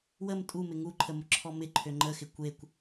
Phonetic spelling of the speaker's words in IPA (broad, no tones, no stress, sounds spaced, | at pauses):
w ə m tʼ u m ɪ ŋ u ǃʰ ə m ʊ ǁʰ ɔ m ɪ ǃʰ ø ŋ͡ǃ ə x ɪ kʷ e kʷ